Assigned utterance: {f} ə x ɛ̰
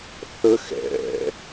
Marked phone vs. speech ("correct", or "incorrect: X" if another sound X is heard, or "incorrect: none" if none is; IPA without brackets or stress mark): incorrect: θ